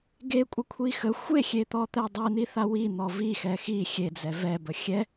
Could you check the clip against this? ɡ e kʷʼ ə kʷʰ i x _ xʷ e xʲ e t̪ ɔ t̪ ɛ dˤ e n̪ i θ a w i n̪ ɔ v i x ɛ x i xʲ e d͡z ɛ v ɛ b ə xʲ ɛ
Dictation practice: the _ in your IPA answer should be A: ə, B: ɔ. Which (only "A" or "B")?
A